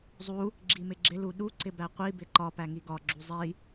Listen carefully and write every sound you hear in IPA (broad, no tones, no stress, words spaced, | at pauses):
zˤu | ɡ͡ǁimɪɡ͡ǁɪ luɗu ǀɪbæqʷi bɪǃɒ pæŋiɡɒ ɡ͡ǁuzˤi